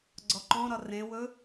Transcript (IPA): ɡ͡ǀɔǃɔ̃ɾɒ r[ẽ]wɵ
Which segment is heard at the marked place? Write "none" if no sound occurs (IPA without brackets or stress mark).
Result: ẽ